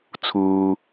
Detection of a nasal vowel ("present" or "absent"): absent